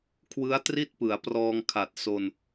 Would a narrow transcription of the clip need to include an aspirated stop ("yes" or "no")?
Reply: yes